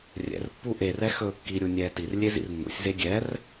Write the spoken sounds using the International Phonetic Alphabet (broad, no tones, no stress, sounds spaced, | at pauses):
rʲ ɛ̰ r pː u ʔ e r ɛ x ɵː kː i ɾʲ u nʲ ɛː t i r lʲ e z ḭ r nː ṵ sʲ z e ɡʲ ɛ r